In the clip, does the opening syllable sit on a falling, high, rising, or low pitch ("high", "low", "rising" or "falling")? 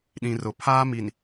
low